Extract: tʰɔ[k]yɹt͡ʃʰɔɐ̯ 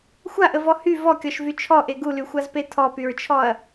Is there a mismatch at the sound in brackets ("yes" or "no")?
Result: yes